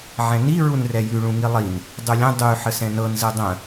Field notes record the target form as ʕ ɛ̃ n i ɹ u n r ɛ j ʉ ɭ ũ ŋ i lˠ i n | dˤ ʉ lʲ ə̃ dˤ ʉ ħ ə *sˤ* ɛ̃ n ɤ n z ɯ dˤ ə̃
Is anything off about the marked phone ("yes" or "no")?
yes